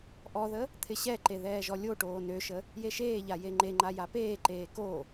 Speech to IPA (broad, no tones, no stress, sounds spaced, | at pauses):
ʔ ɔ ð ə | t̪ʰ ɪ ɕ ɛ ǃ e ð ɛː ʒ ɔ lʲ o ʈ oː n ø ʃ ə | j e ʃ eː ʎ a j e ŋ͡ǃ e ŋ͡ǃ a j a p eː ǃ eː k o